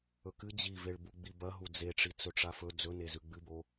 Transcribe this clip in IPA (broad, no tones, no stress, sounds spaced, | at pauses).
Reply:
ɵ k ɨ d͡ʑ i v e ɭ b u ɡ͡b i b ɐ ɦ u d͡z e ʈ͡ʂ i t͡s ɵ ʈ͡ʂ a f ɵ d͡z ɵ n e z ʉ ɡ͡b ɨ b o